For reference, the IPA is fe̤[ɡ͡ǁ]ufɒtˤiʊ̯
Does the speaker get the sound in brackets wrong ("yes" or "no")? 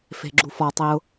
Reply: no